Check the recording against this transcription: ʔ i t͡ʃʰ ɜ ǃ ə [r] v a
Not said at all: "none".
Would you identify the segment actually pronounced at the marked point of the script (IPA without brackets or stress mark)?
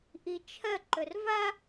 r